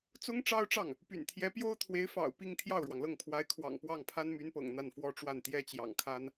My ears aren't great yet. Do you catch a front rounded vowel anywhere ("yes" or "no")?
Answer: yes